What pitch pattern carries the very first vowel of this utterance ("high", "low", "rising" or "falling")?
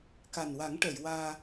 low